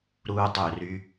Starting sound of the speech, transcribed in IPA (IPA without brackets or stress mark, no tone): ɾ